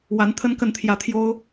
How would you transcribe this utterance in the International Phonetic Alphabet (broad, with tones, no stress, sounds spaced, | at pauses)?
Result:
w a˧˥ n t̪ʰ ə˥ n k ə˥˧ n t̪ʰ j ä˥˩ t̪ʰ j o˥ ʊ̯